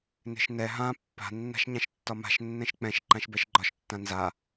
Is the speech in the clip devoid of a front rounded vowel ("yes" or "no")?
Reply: yes